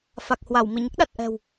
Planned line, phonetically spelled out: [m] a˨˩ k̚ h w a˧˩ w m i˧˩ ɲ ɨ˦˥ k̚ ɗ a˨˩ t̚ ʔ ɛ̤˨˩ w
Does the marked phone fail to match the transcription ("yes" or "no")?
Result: yes